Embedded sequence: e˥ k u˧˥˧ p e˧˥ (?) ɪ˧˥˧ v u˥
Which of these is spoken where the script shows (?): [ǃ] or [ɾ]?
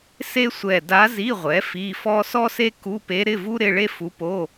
ɾ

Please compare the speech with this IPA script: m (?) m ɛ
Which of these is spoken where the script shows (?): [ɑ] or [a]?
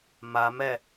a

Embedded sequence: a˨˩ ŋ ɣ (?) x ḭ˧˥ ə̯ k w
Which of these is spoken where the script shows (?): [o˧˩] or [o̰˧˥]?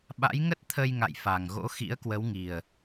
o̰˧˥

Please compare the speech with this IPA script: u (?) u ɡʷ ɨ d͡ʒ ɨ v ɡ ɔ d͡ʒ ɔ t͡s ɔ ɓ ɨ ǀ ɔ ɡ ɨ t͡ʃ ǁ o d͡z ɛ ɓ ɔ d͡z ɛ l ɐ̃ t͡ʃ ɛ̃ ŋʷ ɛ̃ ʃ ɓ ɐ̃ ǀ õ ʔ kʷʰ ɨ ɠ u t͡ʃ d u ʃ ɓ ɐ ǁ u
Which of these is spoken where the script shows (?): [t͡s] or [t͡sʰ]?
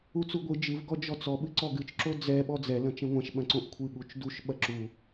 t͡s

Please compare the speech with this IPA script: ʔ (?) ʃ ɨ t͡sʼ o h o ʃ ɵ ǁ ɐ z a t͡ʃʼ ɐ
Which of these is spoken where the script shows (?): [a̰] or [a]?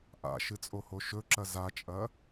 a̰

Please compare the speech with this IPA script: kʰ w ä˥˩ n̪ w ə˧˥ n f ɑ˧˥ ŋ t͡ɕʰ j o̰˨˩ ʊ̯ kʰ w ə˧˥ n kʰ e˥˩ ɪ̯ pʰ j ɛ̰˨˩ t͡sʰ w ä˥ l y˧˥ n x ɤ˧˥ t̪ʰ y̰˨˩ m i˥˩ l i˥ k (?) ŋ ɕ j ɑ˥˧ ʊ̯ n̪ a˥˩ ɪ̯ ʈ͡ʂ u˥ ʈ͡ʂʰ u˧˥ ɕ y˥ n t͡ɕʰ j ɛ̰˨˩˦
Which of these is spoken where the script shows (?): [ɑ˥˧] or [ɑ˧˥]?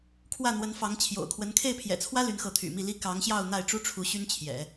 ɑ˧˥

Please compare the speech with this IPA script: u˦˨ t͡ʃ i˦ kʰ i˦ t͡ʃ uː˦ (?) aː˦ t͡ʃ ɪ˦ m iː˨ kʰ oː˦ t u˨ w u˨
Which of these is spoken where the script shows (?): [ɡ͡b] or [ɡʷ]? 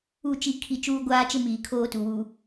ɡʷ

